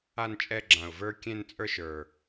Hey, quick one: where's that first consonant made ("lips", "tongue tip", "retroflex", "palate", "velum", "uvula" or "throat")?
tongue tip